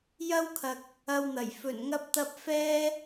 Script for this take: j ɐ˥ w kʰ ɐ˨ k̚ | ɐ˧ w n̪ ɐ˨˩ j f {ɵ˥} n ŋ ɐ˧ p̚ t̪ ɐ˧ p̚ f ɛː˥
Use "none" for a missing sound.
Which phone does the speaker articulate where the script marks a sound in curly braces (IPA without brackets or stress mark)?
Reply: ɵ˨˩